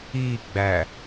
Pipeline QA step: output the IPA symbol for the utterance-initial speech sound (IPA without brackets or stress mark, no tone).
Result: i